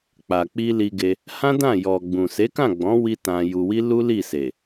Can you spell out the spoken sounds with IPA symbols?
k͡p a˨ k͡p i˧ l i˧ ɡ e˧ | h ã˦ d ã˦˨ j ɔ˨ ɡ͡b ũ˨ s e˨˦ k ã˦˨ ɡ͡b ɔ̃˨˦ w i˧ t ã˧ j u˧ w i˦ l u˦ l i˦˨ s e˨

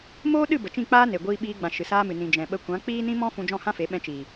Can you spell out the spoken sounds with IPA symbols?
m oː˦ ɗ ɨ˦˨ b ə˨ t͡ʃ ĩ˦˨ k͡p aː˦ n e˨ ɡʷ iː˧ ɓ iː˧ ɡ͡b ã˨ ʃ ɨ˨ s aː˦ m ɨ˨ n ĩ˨ d͡ʒ ɛ̃˨ ɓ ə˧ kʷ ã˨˦ k͡p iː˦ n ĩ˦ m ɔ̃˦ f ũ˧ d͡ʒ ɔ̃˦˨ h ã˦ f e˨˦ ɓ ɛ̃˧ t͡ʃ i˨

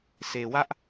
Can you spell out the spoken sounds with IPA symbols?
sʰ e˨ w ä˦ ʔ

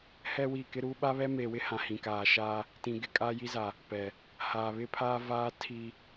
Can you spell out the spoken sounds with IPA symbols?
h ɛ˦ w i˦˨ k ɪ˦ ɾ uː˦ ɓ a˦ β ɛ˦ m eː˨ w ɪ˦ h ã˨ h ĩ˨ k aː˨ ʃ aː˦ | t ĩ˨ ɡ ɪ˨ kʼ a˦ j i˦ z a˨ | p ɛ˨ | h aː˨ β ɪ˦ pʰ aː˦ v aː˦ tʰ i˦

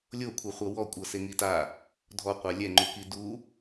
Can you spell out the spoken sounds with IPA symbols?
lʲ o kʷʰ ɤ χʷ ɤ w ɔ kʷʼ ɤ s e ŋ i t a | dʱ ɔ qʷ a lʲ ɛ ŋ͡ǃ u k i d u

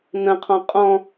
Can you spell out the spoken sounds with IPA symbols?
n ə̃ qʰ ɔ̃ qʼ ɔ̃

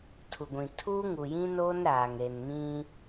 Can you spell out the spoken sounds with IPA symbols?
tʰ u˨ ɡʷ ĩ˨ tʰ uː˦ ŋ u˨ j ĩ˦ n oː˦ n ɾ aː˨ ŋ ɾ e˨ n m ĩ˦

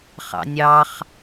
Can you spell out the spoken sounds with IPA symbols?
χ ɑ̰ nʲ ɑ χ

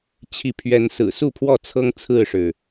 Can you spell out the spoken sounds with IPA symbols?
t͡ɕʰ i˨˦ pʰ ɥ ɛ˨˦ n s ɹ̩˨˩ s u˥˨ pʰ w ɔ˥˨ t͡sʰ ɤ˦ ŋ t͡sʰ ɹ̩˥˨ ʂ ɻ̩˩

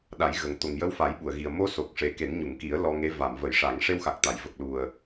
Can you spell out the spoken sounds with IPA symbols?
ɗ a˨˩˦ j ɣ ə˨˩ ŋ t̪ o˨˩ ŋ j ə˧˥ w f a˨˩˦ j ɓ u˨˩˨ ə̯ ɣ i˨˩ ə̯ m o˧ s o˨˩ k̚ ʂ e˨˩ k e˨˩˦ n ɲ u˨˩˨ ŋ k i˨˩˦ ə̯ l ɔ˧ ŋ e˧˥ v a˨˩˨ m v ə˨˩˨ j ʂ a˨˩˦ ŋ ʂ e˧ w x a˨˩ k̚ t̪ a˨˩˨ j v ə˨˩ k̚ l u˨˩ ə̯

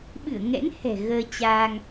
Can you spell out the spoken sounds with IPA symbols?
ɓ ɨ˧˩ ə̯ ŋ ɛ̰˧˥ n h ɛ̤˨˩ ɣ əː˧ t͡ɕ aː˧ ŋ

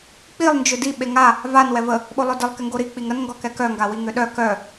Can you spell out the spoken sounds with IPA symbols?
k͡p i lˠ n d͡ʒ ʏ d i ɓ e ŋ a | v a n w ɛ v ə | ɓ o lˠ œ d ɪ lˠ k ɪ ŋ ɡ o ɾ i k͡p i ŋ ə n ŋ ɡ ɔ k ɛ k œ ŋ ɡ a w i ŋ ʏ ɗ œ k œ

